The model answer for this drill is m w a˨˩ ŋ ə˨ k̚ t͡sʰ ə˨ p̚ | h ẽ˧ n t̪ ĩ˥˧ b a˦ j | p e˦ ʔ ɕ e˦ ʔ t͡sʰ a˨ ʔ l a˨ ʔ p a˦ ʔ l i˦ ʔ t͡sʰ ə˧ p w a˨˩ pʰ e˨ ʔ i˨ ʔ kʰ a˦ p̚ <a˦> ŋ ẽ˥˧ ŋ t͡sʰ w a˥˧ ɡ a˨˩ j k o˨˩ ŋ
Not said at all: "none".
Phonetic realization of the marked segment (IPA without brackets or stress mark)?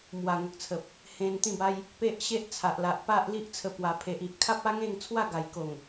a˦